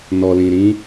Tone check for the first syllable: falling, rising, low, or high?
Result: low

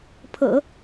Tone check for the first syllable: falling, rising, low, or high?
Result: low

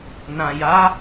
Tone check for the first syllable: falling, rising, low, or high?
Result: low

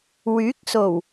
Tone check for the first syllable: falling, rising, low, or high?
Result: rising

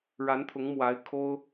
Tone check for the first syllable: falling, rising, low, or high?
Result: rising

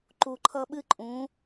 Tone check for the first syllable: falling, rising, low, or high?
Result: low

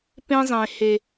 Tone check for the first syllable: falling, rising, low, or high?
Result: high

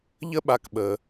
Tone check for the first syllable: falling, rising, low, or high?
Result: high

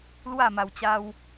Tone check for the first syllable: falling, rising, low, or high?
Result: falling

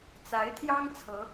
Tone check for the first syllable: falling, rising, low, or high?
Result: rising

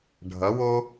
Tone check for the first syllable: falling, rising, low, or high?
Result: rising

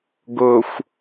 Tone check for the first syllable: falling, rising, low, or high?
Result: low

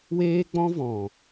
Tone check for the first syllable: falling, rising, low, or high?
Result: high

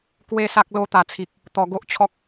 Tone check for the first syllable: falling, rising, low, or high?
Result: falling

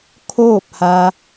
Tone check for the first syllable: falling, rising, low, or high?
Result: falling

